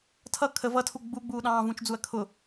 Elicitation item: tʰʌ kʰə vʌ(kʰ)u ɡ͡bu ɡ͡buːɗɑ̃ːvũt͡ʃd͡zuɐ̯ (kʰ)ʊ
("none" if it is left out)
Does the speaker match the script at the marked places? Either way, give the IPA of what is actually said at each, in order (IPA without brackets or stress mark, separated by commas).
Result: tʰ, kʰ